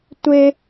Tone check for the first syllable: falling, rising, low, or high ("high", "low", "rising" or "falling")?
high